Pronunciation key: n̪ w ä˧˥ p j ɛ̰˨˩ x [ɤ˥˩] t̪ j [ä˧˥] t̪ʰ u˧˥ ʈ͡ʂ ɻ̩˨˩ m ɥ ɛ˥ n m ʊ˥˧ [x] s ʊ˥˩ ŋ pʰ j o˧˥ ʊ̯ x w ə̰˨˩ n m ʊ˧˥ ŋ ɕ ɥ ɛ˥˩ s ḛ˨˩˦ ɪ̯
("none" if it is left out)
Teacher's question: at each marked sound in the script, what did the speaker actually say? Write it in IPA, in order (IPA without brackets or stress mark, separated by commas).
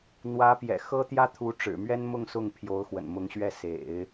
ɤ˥, ä˥, ŋ